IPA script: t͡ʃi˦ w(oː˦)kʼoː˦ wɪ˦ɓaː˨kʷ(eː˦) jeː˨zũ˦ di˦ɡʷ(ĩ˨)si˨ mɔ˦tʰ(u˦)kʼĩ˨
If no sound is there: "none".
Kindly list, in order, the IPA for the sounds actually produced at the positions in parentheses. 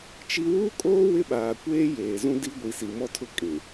uː˦, eː˦, i˨, ʊ˦

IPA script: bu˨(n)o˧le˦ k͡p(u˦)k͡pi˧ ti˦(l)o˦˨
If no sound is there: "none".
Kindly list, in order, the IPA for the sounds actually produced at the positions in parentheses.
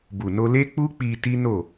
n, u˦, n

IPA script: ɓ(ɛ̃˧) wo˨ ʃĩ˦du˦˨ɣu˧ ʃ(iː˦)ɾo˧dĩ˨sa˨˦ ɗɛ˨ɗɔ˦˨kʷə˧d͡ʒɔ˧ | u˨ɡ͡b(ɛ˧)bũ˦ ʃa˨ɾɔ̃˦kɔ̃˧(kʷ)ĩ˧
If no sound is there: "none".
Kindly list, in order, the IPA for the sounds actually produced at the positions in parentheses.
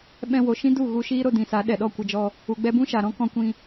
ɛ̃˧, iː˦, ɛ˧, kʷ

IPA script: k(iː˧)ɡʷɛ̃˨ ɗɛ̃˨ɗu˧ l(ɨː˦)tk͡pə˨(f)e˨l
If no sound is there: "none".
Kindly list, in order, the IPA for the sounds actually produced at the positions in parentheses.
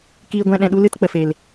iː˨, ɨ˦, f

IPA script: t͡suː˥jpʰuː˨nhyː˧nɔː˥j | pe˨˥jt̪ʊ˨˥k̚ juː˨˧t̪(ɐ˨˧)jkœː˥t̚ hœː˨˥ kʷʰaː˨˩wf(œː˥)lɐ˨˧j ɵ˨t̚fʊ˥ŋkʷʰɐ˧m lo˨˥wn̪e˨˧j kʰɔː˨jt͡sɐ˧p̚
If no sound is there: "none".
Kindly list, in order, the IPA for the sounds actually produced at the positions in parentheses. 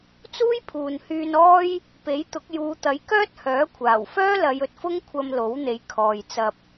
ɐ˨˥, œː˥

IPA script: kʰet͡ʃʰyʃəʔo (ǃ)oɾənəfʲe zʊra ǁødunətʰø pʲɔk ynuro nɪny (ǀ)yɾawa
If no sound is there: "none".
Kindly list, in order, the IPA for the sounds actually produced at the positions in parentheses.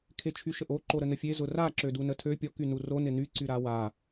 ǃ, ǀ

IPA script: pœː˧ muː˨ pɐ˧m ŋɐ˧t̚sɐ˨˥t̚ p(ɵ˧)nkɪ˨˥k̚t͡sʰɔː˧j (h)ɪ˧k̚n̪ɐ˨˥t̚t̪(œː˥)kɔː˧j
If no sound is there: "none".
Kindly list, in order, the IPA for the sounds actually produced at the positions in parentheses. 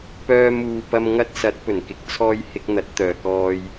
ɵ˨˩, h, œː˨

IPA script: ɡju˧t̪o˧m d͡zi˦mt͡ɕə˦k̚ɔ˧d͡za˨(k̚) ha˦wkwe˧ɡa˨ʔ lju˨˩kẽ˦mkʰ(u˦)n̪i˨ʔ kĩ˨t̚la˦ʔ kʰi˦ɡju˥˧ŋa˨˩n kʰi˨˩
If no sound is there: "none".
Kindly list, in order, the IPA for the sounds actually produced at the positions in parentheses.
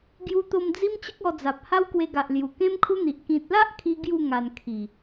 p̚, u˦

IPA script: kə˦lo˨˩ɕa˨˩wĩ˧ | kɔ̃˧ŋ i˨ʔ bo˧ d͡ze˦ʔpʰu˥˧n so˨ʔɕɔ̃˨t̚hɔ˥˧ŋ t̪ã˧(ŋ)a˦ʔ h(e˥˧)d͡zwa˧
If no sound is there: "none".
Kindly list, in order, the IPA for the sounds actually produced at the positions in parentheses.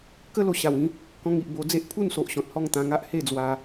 ŋ, e˥˧

